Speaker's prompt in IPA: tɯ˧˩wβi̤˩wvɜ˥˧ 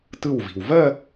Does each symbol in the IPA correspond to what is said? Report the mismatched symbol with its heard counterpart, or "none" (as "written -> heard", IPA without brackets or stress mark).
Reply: β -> v